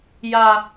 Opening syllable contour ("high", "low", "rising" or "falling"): high